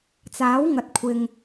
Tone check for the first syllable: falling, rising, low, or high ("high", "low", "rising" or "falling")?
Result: rising